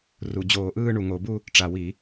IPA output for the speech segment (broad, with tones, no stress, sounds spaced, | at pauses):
r u˨˩ d͡ʑ oː˧˩˧ ʔ ɯː˥˧ ɳ u˨˩ ŋ o˧˩˧ b u˥˧ | ʈ͡ʂ a˨˩ w i˧˩˧